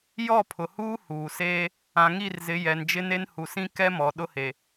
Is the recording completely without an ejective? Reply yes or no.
yes